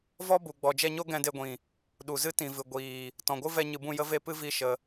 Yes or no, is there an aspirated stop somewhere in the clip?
no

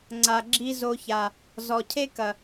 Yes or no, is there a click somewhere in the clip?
yes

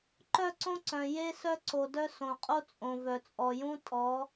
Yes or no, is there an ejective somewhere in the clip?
yes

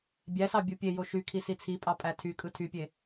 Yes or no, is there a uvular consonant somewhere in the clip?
no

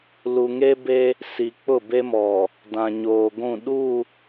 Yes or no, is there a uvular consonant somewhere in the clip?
no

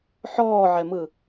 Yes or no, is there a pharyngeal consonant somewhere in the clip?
yes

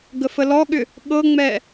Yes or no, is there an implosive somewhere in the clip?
yes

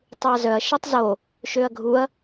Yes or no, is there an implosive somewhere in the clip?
no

